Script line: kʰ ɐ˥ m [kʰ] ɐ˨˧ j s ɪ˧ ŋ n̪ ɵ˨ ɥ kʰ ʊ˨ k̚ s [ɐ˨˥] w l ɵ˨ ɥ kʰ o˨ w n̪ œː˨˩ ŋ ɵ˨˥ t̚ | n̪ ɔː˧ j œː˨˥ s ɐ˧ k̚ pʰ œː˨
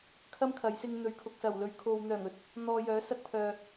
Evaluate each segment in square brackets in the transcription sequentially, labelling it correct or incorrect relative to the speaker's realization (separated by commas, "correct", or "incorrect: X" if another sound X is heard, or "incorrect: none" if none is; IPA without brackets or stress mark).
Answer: correct, incorrect: ɐ˨˩